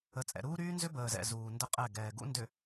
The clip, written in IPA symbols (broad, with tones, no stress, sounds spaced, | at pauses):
ə˨ t͡sʼ ɛ̰˨ ɾ uː˦ ɾ yː˦ n z ʏ˦ b əː˨ z ɛ̰˨ z uː˨ n d ə˦ qʼ ɛ˦˨ ɡ ɛː˨ ɡ ṵ˦ n d ʏ˨